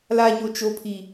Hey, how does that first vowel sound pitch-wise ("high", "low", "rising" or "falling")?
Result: high